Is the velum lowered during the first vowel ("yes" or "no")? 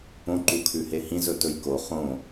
yes